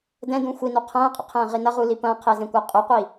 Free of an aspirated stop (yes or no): no